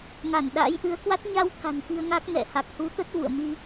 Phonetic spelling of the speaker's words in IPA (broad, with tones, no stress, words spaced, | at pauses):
ŋa˧˩n ɗa̰ː˧˥jʔɨ˨˦ə̯kwa˦˥t̚ ɲa˧wt̪ʰa̤˨˩n fi˧ə̯ŋa˦˥k̚ ŋɛ̰˧˨ha˨˩k̚ hu˨˦t̪ə˦˥t̚vṵ˧˨ə̯mi˧